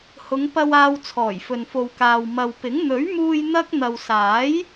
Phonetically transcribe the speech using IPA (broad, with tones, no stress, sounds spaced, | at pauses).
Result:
h ʊ˨˧ ŋ p ɐ˧ w aː˧ w t͡sʰ ɔː˨˩ j f ɵ˨ n f o˨ w k aː˨ w m ɐ˨ w p ɪ˨˥ ŋ n̪ ɵ˨˥ ɥ m uː˧ j n̪ ɐ˥ k̚ n̪ ɐ˨ w s aː˨˥ j